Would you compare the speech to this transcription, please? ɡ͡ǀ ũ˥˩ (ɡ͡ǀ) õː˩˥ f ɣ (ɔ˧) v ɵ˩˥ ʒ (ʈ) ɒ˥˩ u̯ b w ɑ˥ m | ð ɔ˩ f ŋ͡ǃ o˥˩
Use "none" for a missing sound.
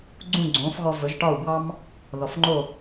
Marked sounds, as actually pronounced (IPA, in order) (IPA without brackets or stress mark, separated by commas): ɡ͡ǀ, ɔ˧, ʈ